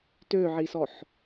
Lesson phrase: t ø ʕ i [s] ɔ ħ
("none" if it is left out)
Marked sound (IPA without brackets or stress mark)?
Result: s